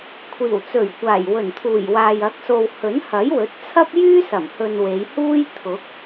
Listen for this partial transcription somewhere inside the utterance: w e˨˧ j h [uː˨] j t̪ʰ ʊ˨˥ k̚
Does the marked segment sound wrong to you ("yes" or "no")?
yes